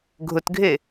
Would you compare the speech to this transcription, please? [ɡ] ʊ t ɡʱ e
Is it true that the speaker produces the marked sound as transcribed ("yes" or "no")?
no